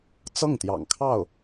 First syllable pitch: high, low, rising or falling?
falling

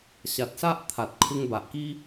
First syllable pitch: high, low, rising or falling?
low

